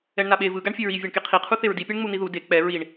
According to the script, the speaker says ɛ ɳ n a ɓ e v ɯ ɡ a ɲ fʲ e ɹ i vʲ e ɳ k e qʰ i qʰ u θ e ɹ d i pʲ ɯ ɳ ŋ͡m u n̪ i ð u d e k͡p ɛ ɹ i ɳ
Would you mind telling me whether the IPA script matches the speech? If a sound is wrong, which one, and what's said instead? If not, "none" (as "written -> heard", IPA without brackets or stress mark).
ɲ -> ɳ